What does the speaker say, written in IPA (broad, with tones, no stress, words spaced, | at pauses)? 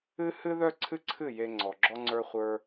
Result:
ɨ˦hɨ˦ðœ˦ ǀʰɨ˦ǀʰɨ˦˨ je˧ŋ͡ǀɔ˨ɡ͡ǁɔ˦ŋ͡ǀə˞˦ χʷə˞˦